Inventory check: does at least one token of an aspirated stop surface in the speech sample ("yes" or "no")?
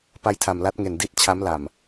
yes